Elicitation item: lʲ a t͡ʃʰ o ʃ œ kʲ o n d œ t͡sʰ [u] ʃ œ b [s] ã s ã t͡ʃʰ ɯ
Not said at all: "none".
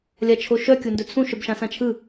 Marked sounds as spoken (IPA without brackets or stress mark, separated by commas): ũ, ʃ